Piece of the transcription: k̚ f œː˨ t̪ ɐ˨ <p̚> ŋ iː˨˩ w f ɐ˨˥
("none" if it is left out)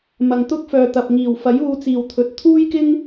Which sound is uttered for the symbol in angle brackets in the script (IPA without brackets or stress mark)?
p̚